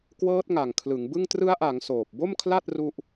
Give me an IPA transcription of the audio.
kwɤː˦˥t̚ŋa˨˩ŋkʰlɯ˩˦ŋbɯ˥˩ŋ trɯ˦˥a̯ʔa˩˦ŋ soː˨˩p̚bo˥˩mkʰla˥˩t̚ ru˥˩ʔ

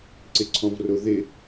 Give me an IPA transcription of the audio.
ǀɪǀʰɔ̃vrʊ ðɪ

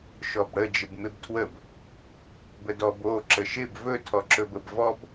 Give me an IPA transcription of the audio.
ʃɔbɽə d͡ʒɪbmɪbtʰwəb | bədɔb o ǁəʃɪb vɵ tʰɔǁɵbəb vɔb

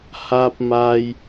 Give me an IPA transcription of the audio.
haː˥p̚maː˥j

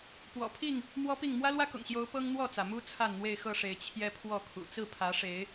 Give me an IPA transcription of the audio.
pwɔ̰˨˩pʰi˥˨ŋ | mwɔ˦pi˥˨ŋ mwä˦lwä˦kʊ̰˨˩ŋɕjo˨˦ʊ̯ pɤ˦ŋn̪wɔ˥˨t͡sä˩mu˦ t͡sʰa˥˨nn̪we˥˨ɪ̯xɤ˥˨ʂe˨˦ɪ̯ t͡ɕʰjɛ˦pʰwɔ˥˨kʰṵ˨˩ t͡sɹ̩˥˨pʰä˨˦ʂe˨˦ɪ̯

